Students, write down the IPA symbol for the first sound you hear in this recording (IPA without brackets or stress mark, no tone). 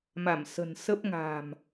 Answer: m